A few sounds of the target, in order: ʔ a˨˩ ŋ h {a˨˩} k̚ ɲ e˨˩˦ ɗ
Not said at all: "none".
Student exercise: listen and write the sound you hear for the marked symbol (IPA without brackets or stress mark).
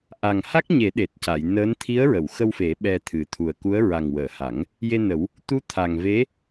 a˦˥